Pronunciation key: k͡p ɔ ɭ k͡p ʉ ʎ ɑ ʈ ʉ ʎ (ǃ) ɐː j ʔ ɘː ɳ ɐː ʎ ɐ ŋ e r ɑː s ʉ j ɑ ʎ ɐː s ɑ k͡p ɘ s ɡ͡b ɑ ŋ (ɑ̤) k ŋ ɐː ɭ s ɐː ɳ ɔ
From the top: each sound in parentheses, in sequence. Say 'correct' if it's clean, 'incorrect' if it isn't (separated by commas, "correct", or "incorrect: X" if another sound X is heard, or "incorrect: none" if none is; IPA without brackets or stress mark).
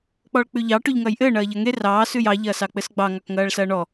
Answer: incorrect: ŋ, incorrect: ɑ